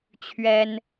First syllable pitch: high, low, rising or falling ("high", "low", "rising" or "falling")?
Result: high